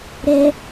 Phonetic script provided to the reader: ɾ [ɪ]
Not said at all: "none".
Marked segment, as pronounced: ɛ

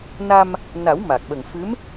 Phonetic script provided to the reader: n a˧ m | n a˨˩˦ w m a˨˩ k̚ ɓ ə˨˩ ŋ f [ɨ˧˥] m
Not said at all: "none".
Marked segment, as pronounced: ɨ˧˥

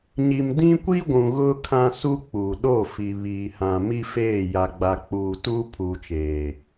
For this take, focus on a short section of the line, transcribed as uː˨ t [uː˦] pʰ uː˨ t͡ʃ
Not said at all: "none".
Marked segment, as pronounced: uː˦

